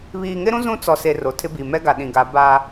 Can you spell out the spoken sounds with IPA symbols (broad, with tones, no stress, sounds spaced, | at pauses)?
β iː˨ ŋ ɪ˦ ɾ ũ˦ z ũ˦ t͡s ɔ˨ s e˨ r o˨ tʰ ɪ˦ b i˨ m ɛ˦ ɡ a˨ ɗ ĩ˨ ɡ a˨˦ b a˦